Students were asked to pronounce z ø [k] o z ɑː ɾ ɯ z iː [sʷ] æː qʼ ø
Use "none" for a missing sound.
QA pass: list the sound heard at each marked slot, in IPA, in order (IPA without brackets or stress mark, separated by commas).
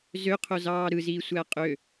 qʰ, sʷ